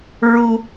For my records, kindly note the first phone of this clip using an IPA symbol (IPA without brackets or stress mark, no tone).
ɹ